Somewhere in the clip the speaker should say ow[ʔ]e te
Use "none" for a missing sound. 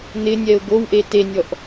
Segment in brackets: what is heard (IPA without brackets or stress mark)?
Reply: ʔ